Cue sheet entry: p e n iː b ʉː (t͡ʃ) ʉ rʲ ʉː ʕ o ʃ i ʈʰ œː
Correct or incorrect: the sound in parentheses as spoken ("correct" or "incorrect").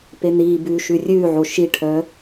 incorrect